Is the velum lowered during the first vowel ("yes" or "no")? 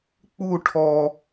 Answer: no